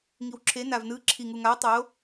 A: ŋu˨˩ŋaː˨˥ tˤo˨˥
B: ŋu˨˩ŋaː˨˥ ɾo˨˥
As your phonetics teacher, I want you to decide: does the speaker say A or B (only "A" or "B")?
A